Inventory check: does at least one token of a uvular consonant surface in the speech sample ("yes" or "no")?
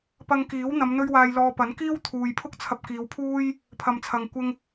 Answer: no